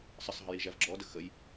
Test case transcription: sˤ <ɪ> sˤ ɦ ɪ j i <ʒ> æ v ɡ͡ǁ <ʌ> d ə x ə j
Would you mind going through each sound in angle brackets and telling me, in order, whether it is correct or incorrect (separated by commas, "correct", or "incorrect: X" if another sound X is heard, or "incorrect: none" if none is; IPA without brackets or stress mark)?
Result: incorrect: ə, correct, incorrect: ɔ